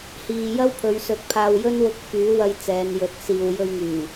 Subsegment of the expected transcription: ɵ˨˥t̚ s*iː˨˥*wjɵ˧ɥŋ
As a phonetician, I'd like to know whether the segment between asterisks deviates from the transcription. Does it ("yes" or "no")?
yes